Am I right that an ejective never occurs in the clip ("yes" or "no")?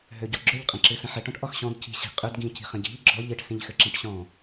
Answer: no